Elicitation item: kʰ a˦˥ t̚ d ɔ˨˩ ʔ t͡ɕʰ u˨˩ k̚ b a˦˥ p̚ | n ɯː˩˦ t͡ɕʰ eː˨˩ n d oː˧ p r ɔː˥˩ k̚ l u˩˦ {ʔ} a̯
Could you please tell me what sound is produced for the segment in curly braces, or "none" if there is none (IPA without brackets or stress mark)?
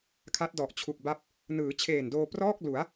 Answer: none